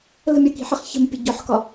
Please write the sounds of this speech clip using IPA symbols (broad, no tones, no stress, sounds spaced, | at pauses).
l ə̤ mʲ ɒ k i̤ ħ ə χ ç ə̤ m pʲ ə ɟ ɔ ħ k ɒ